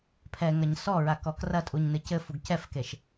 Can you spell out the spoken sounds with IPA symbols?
pʰ ɛ ŋ ɐ ɲ s ɔ ɹ a k ɔ k r ɐ tʼ u ɲ n ɨ c ɘ f u ɡ c ɛ f k e ʃ

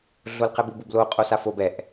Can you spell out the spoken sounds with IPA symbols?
ɮ o l q ɛ b u b u b l o qʼ o s a f o b ɛ ʔ

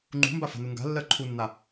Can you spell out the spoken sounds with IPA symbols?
ŋ͡ǃ ṳ m b a f a̤ n u ŋ ɡ a̤ lː ɜ ǃʰ u nː a

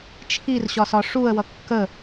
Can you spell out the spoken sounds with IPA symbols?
t͡ʃʰ i r ɕ ɒ s ɒ ʂ u ə̯ w ʌ kː ə

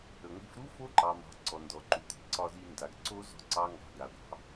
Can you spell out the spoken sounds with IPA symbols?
ə˨ ŋʷ i̤˦ f ɾ u˦ f o˦ ǃ ɑ˨ m ɑ̤˨ ǀ ɔ˨ n d ɔ˨ ǃ u˨ t i̤˨ ǀ ɒ˧ z i˧ n d a˨ ɡ ǀ o˦ z ɔ̤˦ ǀ ɑ˦ ŋ ɡ ɑ̤˧ ɡ a˨ ɡʷ ɑ̤˨˦

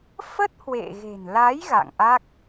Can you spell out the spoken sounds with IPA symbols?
f ə˦˥ t̚ h w ḛ˧˨ ɣ e̤˨˩ n l a˨˦ j ɣ a̰˧˨ ŋ ʔ a˦˥ k̚

